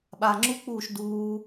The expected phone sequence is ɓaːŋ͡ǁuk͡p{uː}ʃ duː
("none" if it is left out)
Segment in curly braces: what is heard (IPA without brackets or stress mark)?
uː